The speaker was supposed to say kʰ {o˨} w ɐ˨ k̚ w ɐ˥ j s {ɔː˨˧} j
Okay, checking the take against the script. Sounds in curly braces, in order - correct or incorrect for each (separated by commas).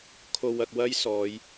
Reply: correct, correct